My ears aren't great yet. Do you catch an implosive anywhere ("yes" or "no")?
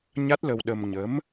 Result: yes